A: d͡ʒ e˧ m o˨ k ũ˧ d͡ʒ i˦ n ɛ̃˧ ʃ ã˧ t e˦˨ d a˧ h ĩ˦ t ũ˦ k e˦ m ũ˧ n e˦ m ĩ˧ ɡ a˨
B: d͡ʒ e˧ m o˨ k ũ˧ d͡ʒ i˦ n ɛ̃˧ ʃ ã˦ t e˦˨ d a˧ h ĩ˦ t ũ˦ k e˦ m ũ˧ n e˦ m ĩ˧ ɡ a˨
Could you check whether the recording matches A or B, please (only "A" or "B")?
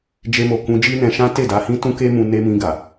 B